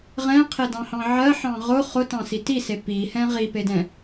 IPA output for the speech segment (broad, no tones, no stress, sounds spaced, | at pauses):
ʁ ɛ̃ qʰ e d ɑ̃ h ɑ̃ ʕ ɜ ħ ɑ̃ ʁ ʊ χ ʊ t ɑ̃ s i t i s e p i h ɛ̃ ʁ i p e d ɛ̃